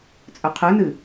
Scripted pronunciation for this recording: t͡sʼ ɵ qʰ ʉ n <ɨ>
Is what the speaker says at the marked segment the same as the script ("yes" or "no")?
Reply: yes